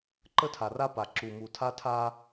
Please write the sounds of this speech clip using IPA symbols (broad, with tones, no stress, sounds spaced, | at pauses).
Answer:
ǃ ə˦ tʰ a˨ r a˦ p a˨ ǁ u˨ m u˨ tʰ a˦ tʰ a˦